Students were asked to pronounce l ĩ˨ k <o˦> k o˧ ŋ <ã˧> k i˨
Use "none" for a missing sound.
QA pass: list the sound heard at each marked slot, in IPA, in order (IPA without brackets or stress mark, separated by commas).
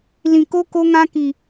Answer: o˦, ã˧